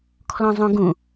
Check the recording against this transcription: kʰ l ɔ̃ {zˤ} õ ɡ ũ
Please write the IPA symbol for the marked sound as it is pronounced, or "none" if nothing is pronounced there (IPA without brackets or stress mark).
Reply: zˤ